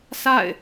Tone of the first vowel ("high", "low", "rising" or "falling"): falling